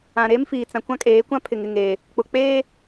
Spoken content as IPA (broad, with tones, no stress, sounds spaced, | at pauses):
ã˨ ɾ eː˦ m f iː˨ t͡s ã˨ kʷ ã˦ kʼ eː˨˦ kʷ ã˦ pʰ ɪ˨ ŋ ɪ˦˨ ŋ e˨ | k͡p ʊ˨ k͡p eː˦